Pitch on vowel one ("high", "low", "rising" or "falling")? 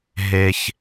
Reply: high